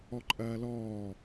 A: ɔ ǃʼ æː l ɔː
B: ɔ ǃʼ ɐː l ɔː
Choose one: B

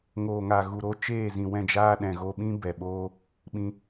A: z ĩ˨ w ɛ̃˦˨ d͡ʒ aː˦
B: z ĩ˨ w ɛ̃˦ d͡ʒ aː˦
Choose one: A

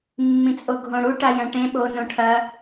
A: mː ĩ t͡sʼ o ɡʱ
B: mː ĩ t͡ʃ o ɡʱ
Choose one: A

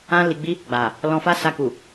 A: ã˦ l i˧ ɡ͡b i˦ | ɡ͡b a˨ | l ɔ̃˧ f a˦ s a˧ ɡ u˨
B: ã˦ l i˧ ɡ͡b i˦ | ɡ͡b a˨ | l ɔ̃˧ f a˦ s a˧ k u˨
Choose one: B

